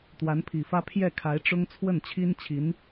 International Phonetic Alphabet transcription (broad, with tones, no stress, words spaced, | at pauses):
t̪wa˧˥npʰi˨˩fä˥ pʰjɛ˥˩kʰa˧˥ɪ̯ʈ͡ʂʊ˥ŋ t͡sʰwə˥˩nt͡ɕʰi˥nt͡ɕʰi˧˥n